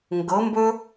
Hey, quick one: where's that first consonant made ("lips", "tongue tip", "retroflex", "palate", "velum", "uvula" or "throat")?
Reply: velum